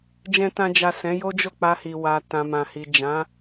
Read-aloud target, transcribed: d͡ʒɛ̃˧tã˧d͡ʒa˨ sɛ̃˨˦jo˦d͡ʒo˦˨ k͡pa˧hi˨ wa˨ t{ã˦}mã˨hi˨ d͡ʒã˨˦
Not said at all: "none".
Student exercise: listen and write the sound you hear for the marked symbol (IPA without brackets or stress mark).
ã˨